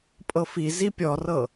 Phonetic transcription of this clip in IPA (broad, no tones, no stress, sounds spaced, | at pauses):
pʼ ɤ f i z i pʲ ɔ r ɤ